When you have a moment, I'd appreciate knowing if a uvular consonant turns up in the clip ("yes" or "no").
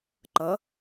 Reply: no